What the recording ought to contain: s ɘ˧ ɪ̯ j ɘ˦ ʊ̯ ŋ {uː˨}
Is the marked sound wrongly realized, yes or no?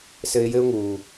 no